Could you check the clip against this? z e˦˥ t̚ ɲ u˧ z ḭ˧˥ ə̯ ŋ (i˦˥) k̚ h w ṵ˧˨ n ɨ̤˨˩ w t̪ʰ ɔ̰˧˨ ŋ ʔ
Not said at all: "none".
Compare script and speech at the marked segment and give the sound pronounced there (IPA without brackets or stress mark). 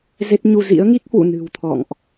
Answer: i˦˥